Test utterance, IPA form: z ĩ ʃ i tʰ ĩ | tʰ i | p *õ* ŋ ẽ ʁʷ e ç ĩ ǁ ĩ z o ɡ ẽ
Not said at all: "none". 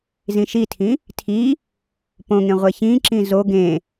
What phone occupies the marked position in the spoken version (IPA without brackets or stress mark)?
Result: õ